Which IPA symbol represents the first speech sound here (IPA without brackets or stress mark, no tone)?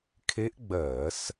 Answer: kʰ